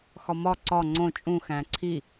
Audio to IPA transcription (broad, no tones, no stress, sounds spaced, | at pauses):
x ɒ m ɒ ǀ ɒ ŋ͡ǀ õ t͡ʃʼ ũ x æ̃ ǀʰ i